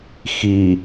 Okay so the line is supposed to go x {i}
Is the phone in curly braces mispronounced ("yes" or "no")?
no